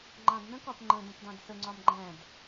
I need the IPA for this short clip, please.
ŋ͡ǃ ɑ̃ d n ə̃ k ɒ p ŋ͡ǃ ə̃ d ə̃ p d ɑ̃ d s ə ŋ͡ǀ ɒ m ɡ͡ǃ æ̃ d

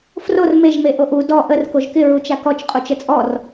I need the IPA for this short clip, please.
f r o r m e ʒ m e ʔ o ʔ u d ɔ ʔ ə r k o ʒ k ɪ ɹ u t͡ʃ a k ɔ t͡ʃ qʼ u t͡ʃ ə t͡sʼ ɔ r

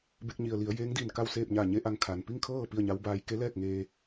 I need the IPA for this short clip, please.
b e˧ k̚ ɲ i˩ ə̯ l i˩˧ ə̯ j e˧˥ ŋ d i˧˩ n k a˥˨ w s eː˥˨ p̚ ɲ a˧˩ ɲ e˧ ʔ a˧ ŋ kʰ a˩ n p i˥˨ ŋ kʰ ɤː˥˨ p i˥˨ ə̯ ɲ a˧˥ w b aː˧˥ j k e˧˥ l ɛː˥˨ k̚ ŋ eː˧

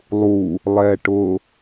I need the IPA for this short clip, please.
lˠ u | lˠ ɛː ʈ ʊ

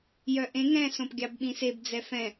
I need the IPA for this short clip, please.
j œ ʔ ẽ ŋ ɛ̃ s õ p ɡʲ ɑ b ɓ ĩ s e b d͡z ɛ f ɛ̃

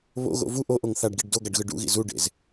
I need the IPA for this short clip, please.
β o̰ ɣ o̰ v u ʔ o ʔ o ŋ θ a ɖ ɡ i ɖ d o ɡ a ɖ ɣ ɯ ɖ ṵ ɣ ḭ z u ɖ ḛ z

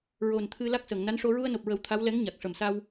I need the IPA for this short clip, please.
ɹ o˨˩ n t̪ʰ ɨ˧ l a˦˥ k̚ s əː˨˩˨ ŋ n a˧˥ n ʂ o˧ ɹ u˧ ə̯ n o˨˩ p̚ ɹ ə˨˩˦ w t̪ʰ a˧˥ w l ɛ˧˥ ŋ ɲ a˨˩ k̚ ʂ ə˨˩ m s a˧ w

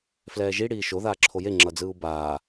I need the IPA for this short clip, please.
f l ɛː ʒ i ɽ iː ʃ o ð aː ǁʰ o j e ŋ͡ǁ ʌ d͡z ɯː u̯ b aː

